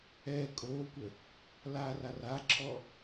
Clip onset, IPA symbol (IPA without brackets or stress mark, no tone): ɛː